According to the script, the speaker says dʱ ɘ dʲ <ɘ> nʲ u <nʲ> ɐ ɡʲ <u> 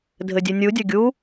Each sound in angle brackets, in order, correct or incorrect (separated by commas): incorrect, incorrect, correct